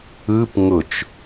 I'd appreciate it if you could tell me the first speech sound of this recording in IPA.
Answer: ɯ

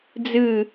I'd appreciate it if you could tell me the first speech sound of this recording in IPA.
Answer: d͡z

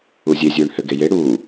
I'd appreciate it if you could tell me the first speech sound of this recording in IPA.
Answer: u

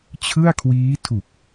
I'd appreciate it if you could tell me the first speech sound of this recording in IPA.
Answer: t͡ɕʰ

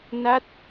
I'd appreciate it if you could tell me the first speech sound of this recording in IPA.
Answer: n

